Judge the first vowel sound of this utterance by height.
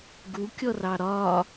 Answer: high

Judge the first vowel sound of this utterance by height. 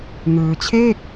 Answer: high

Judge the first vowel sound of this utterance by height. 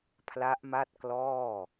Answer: low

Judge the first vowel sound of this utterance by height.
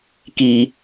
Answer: high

